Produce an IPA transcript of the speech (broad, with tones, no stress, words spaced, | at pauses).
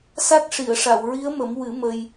sa˦˥t̚ʂi˨˩˨ə̯ʂa˨˩˨w ɹi˧˥ə̯mə˨˩˦mwɨ˨˩˦ mə˧j